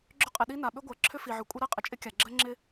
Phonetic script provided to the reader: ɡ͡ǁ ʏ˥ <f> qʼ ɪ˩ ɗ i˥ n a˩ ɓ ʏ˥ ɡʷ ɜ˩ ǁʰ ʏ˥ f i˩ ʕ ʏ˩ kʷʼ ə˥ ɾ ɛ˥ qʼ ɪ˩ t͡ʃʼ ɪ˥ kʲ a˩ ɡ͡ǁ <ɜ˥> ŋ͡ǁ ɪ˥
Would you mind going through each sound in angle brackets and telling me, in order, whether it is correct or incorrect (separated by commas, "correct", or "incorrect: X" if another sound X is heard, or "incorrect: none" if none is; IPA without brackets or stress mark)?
incorrect: none, correct